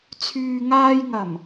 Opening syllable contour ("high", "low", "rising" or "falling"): low